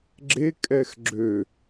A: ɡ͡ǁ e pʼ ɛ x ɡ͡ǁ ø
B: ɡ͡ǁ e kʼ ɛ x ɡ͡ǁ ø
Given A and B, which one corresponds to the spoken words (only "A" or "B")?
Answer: B